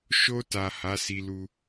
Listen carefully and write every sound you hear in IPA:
ʃ o˧ t a˨ h a˨˦ s i˧ l u˧

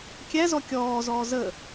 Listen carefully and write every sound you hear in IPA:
kʲ æ z ɔ kʲ ɔː z ɔː z ə

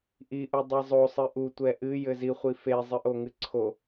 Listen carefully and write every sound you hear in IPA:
ʔ i ʔ u dˤ i zˤ o sˤ ɨ ʔ u tʷ ɛ ʔ ɨ j ɘ z i χʷ i f e zˤ ɨ ʔ o ŋ ɨ ǀʰ o

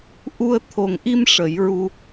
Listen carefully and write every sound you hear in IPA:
ʔ u˧ ə̯ t̪ʰ o˨˩ ŋ ʔ i˧ m ʂ ə˨˩˦ j ɹ u˧

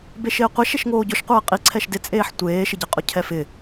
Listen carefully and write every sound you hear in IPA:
b e ʃ ɪː qʷ e ʃ e ʃ ŋ oː ɟ ʊ ʃ qʷ ɛː qʼ i ǀʰ ɛ ʃ d ɪ t͡sʼ eː ħ tʷ eː ʃ ɪ ɟ ɛ qʼ ʊ cʰ ɛ f ɪ

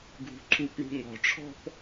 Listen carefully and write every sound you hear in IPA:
ɡʱ ṳ ǃʰ u p ɳ ṳ ŋ ɔ̤ ʈ͡ʂʰ ɔ̤ p

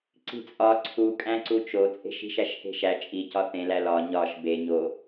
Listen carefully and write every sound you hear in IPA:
ǀ i̤ t͡sʼ ɒ ǀʰ u kʼ æ̃ ǀ u t͡ʃ o t͡sʼ e̤ ʃ i̤ ʃ æ ʃ h e̤ ʃ æ t͡ʃʼ i c ɒ θ ẽ l æ l ɒ ɲ ɒ ʃ b e ɲ o

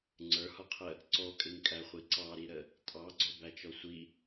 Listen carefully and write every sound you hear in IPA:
ŋ͡ǀ ə˞ h ɔ qʰ ə | ǀ ɔ kʼ ɪ ŋ kʼ æ χʷ i ǀ ɑ ɾ i ɾ ə | tʼ ɑ ɡ͡ǀ ɔ b æ t͡ʃ ɔ sʷ i

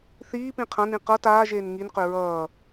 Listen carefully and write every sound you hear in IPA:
θ iː p ĩ qʰ ã n ĩ q ʌ t aː ʒ eː n ŋ i n q ø ɹ ʌː

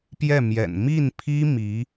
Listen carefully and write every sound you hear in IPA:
p j ɛ˥˩ m j ɛ̰˨˩ n m i˥˩ n pʰ i˥ m i˧˥

